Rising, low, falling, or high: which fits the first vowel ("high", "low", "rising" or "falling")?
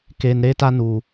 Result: low